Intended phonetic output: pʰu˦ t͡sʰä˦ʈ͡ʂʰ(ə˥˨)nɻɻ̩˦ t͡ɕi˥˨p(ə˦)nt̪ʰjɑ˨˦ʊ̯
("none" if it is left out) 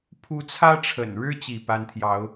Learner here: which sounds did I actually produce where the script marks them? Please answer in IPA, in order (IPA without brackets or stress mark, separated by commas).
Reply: ə̰˨˩, a˦